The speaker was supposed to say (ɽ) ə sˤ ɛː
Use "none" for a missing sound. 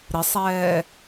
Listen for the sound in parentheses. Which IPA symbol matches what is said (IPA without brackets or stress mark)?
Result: ɾ